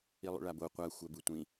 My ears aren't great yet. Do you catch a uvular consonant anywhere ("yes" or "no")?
yes